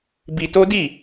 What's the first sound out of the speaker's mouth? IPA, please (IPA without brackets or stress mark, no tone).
b